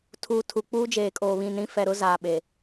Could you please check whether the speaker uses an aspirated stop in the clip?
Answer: yes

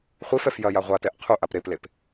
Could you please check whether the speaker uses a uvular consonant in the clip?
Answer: yes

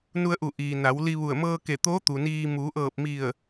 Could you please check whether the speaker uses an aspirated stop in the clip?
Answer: no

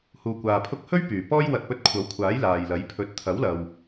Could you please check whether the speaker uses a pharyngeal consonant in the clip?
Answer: no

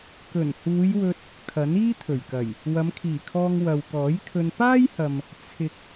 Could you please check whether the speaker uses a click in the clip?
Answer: no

